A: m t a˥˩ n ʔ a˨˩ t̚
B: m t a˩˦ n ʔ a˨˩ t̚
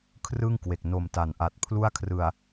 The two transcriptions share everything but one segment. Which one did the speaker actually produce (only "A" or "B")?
B